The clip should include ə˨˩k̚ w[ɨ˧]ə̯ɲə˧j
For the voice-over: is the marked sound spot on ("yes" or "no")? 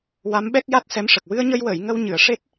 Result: yes